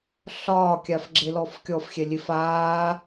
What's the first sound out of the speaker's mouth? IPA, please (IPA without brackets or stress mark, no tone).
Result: ɬ